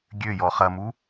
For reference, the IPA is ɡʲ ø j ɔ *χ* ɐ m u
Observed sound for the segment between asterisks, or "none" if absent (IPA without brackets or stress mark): χ